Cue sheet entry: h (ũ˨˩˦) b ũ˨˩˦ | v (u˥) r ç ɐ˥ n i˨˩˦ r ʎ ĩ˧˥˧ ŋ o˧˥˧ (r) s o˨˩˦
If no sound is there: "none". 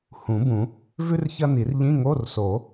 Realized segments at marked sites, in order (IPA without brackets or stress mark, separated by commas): ũ˨˩˦, ʉ˥, r